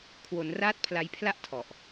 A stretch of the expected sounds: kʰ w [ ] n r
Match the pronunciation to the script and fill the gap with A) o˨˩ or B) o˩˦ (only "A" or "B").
B